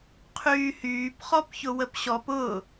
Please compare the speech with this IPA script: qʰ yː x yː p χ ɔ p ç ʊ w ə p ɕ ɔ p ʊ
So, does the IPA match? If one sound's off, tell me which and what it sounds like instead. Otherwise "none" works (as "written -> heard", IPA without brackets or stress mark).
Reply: x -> h